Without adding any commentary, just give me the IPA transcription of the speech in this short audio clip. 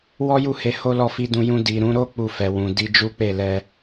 wɔ˦ju˦˨he˨˦ ho˦lɔ˦˨fi˧dũ˧ jũ˧di˨ ɾũ˨˦ɾo˦ k͡pu˧fɛ˨ wũ˨ di˧d͡ʒu˦k͡pe˦˨ lɛ˧

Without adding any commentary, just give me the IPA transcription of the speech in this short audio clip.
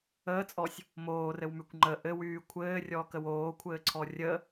əːt͡sʼɔsʲ | moːrɘwmykʷ ŋ͡ǃə ʔɘwyː kʷʰɘːrʲɔːkəw oːkʷʰɘːǀʰɔ rʲə

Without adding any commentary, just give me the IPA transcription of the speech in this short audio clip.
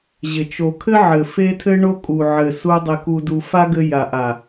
ʑɪ˨t͡ʃo˨kʰɘ˦ʕɘ˨ fe˦tʰɘ˦ɳo˦ kʼu˨ʕɘ˨su˧ dˤɪ˨ku˨du˨ fa˦ɡɘ˧ ja˨ʔa˨

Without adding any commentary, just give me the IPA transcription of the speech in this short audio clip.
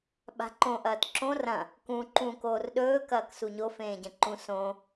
ɓa̤ǃõ ʔɐːtǁõ rɐ̃ | kũ ǃũ koːrɗɵː kɐːksuɲo fẽːɟɐ̃ǃũ sõ

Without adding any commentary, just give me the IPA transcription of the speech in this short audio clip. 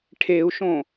ʈʰeu̯ʃõ

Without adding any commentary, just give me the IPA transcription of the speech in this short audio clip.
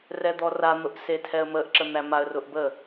rɛd̪ɔran̪ʊʔ setʰɛə̯məʔǁə n̪æmaə̯rʊʔ bə

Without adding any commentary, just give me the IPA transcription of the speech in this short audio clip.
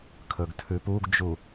kʰɵɡtʰʉpuɡd͡ʒu

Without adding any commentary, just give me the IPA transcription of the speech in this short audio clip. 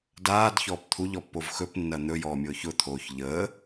daːdçɔːp t̪ʰuʎɔpːov xɵpnːɐ n̪ɵjɔːmʲʊːç ʊt̪ʰoːç ʎəː

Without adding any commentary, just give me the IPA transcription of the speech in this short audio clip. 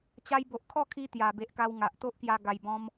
t͡ɕa˧jbo˨ʔkʰɔ˥˧kʰi˧ t̪ja˨˩be˨ʔka˧wŋa˨ʔ t̪o˦ʔkja˧ ɡa˨˩jbɔ̃˧m

